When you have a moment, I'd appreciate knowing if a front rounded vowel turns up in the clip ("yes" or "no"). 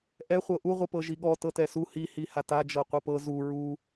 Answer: no